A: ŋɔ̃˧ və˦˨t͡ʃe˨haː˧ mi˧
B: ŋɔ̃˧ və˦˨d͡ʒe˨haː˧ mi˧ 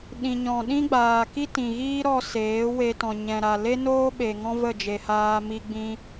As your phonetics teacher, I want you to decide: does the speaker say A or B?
B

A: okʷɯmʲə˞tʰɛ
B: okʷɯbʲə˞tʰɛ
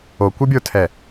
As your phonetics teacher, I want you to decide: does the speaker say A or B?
B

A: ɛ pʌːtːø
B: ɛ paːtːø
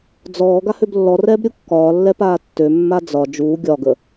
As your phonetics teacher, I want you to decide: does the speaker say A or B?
B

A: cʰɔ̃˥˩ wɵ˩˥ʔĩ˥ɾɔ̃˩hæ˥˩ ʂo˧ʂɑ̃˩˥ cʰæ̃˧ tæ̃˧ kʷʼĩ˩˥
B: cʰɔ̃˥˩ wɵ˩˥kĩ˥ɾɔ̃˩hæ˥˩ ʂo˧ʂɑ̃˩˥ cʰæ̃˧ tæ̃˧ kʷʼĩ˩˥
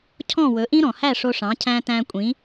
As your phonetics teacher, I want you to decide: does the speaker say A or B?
A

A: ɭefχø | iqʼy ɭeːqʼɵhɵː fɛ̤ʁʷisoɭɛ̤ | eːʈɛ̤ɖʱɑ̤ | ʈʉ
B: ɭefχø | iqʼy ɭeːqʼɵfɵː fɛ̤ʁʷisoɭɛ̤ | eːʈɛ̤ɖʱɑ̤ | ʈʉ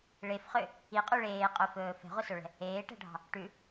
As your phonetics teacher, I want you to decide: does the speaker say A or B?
B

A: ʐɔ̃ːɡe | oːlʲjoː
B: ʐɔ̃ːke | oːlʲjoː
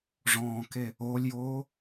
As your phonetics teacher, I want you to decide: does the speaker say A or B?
B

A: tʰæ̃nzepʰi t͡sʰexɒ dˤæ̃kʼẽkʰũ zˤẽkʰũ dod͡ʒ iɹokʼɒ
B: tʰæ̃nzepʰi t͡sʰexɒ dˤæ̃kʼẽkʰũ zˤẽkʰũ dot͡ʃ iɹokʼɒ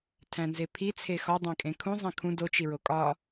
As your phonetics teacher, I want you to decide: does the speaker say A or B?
B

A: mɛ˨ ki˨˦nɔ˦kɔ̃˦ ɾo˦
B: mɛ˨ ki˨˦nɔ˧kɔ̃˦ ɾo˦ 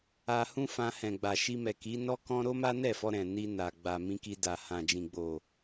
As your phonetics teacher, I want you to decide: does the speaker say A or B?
A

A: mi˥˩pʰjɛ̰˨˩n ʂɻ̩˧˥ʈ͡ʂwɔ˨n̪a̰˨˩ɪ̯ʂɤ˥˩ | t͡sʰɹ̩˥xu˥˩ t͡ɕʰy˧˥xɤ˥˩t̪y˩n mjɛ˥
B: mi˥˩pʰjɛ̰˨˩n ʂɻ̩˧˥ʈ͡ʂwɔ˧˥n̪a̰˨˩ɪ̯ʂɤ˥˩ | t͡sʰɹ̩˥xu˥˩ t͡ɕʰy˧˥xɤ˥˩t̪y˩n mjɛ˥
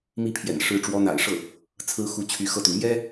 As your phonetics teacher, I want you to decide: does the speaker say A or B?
B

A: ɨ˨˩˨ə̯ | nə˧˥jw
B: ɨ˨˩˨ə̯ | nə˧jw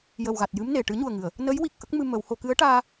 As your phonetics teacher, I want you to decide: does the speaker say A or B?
A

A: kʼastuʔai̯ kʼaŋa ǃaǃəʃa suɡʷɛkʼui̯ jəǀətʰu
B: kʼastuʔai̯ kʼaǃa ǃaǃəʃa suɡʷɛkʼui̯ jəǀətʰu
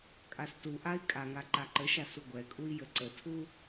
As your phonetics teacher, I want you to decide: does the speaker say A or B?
A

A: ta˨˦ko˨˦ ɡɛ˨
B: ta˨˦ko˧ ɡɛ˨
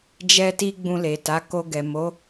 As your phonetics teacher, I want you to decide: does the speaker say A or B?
B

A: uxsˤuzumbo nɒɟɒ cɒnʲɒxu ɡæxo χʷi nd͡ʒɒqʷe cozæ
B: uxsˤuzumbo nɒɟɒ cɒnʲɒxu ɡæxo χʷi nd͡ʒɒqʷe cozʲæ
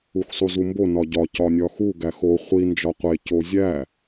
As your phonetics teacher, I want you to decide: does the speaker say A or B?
B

